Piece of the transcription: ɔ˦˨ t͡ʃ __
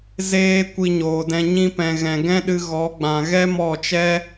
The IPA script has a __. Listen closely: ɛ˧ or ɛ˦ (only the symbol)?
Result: ɛ˦